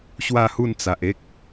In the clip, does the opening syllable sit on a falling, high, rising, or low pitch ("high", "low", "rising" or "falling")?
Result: falling